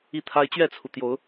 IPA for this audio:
i˦ t̪ʰ a˦ ɪ̯ t͡ɕ ɥ ɛ˥˨ t͡sʰ u˩ t̪ j o˨˦ ʊ̯

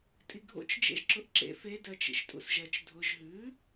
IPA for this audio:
tʼ i ɡʱ o̰ t͡ʃ d͡ʒ ḛ ʒ ǁ ʊ ʔ ǁ ḛ f e d ɜ t͡ʃ ḭ ʃ tʼ ṵ s ʒ ɜ t͡ʃ dʱ ʊ ʒ ɦ ʉ

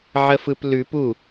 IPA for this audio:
ʕ ə f ɯ p l ʉ p u

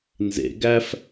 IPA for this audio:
n z ḛ ɡ æ f

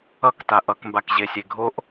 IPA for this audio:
ʌ k t a ʔ ʌ k m b a k ʑ e sʲ e ɡʱ o ʔ

